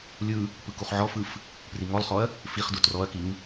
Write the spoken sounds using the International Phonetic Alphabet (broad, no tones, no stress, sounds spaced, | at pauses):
lʲ ɯ | p ɯ k u χ ʕ ɔ f ɯ f | p r i ŋ ɔ lˠ χ ɔ ɐ̯ | f i χ d u t r ɔ ɐ̯ k i ŋ